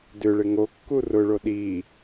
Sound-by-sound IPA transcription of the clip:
dʏɭɪ ŋokːu rʊɭo ɗi

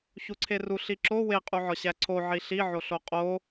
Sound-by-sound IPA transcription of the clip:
çuǀʰeru ɬiǁo weqʼuʕɒ ɕæǀʰoʕi ɬiʕoɬo qʼo

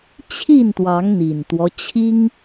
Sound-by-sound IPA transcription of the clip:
t͡ɕʰi˥˨nt̪wɑ˨˦ŋ n̪i˨˩nt̪wɔ˦ t͡ɕʰi˦ŋ

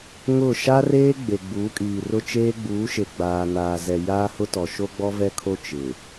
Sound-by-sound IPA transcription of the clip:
ŋʊ˦˨ ʃa˦reː˦ ɡ͡be˨ɡ͡buː˨˦kʼiː˨rʊ˦ t͡ʃeː˦ɡ͡buː˨˦ʃe˨ ɡ͡baː˨ naː˨zɛ˨ jaː˦hʊ˦tɔ˨ ʃo˦ɡ͡bɔ˦vɛ˦kʰo˦ t͡ʃɪ˨

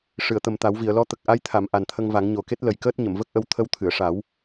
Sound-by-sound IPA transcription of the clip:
ʂɨ˨˩˨ə̯t̪ə˨˩mt̪a˨˩˦wvi˨˩˨ə̯ lɔ˧˥t̪ə˨˩k̚ ʔa˧˥jt̪ʰa˨˩˨m ʔa˨˩nt̪ʰə˧ŋva˨˩˦ŋ ɲo˨˩ke˦˥t̚lə˨˩jkəː˦˥t̚ ɲə˨˩˨mvə˦˥k̚ʔə˧w t̪ʰə˧wt̪ʰɨ˨˩˨ə̯ʂa˨˩˦w

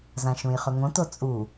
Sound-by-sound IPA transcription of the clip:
zãʃũjχɵŋõ tot͡sʼu

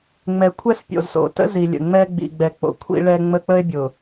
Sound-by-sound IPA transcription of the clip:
ŋ͡mɛ˨kʷʰɛ˦s pʲo̰˨zso̰˨tə̰˦ zi˨lʲə̰˨ŋ͡mɛ˦ ɡ͡bḭ˨ɡ͡bɛ˨k͡po̰˨ kʷʰḭ˦ɭɛ˦ŋ͡mə˦ k͡pə˦e̯bʲʊ˨

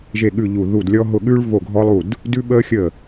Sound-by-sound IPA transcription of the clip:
ʒe˥˩ɠʉ˥˩ ʎu˥˩ ðu˥˩dlʲɔ˥ ɦʊ˥˩ɠʉ˥ɭ vo˥˩ɡʱɔ˥lˠu˥˩d | dʉ˥ɓəː˥xʲə˥˩

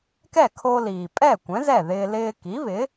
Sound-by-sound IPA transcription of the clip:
kɛ˥˩kʰo˧ liː˩ pʼɛ˥˩kʷɛ̃˩˥ zɛ˥˩ðɪː˧ lɪː˧ki˩˥βɪ˩˥

